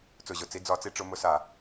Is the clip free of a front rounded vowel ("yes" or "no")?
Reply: yes